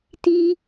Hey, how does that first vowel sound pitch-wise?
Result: high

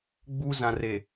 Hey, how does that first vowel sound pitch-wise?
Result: high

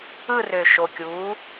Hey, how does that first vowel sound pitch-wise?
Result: falling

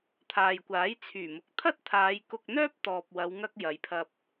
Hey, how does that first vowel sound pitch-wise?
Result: low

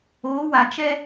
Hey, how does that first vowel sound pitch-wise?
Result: rising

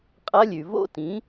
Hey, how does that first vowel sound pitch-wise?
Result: rising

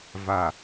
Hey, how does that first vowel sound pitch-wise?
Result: low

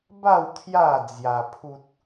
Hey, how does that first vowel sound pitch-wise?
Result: falling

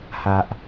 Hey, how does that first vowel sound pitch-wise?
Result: low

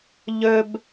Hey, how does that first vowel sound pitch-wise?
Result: high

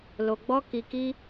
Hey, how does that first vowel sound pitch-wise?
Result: low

